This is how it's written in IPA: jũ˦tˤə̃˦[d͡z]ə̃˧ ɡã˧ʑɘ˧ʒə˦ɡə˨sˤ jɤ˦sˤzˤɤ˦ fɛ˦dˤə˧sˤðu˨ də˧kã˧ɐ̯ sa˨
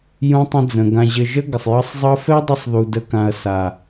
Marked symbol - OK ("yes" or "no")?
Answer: yes